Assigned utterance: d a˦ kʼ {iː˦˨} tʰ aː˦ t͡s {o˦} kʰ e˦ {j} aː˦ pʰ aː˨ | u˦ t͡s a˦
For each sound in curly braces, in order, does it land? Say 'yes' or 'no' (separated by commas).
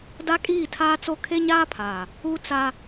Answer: yes, yes, no